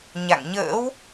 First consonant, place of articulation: palatal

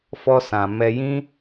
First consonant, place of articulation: labial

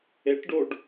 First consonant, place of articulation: retroflex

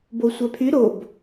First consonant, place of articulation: labial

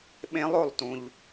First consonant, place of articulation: labial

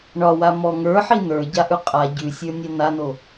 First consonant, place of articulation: retroflex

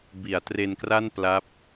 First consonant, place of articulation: labial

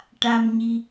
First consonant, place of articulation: retroflex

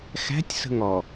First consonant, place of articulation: velar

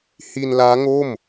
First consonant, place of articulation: glottal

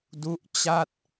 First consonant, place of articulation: alveolar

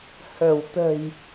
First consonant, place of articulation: glottal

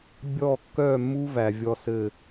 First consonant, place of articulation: labial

